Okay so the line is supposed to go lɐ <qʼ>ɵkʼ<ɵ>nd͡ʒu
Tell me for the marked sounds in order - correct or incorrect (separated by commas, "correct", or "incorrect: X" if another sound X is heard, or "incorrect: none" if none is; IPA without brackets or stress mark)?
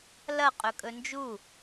correct, correct